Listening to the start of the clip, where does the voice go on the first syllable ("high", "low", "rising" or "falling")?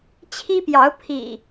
high